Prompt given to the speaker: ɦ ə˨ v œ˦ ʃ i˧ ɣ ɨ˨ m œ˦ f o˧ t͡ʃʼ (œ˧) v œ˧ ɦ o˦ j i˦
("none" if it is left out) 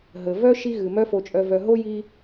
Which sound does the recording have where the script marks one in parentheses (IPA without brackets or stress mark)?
œ˧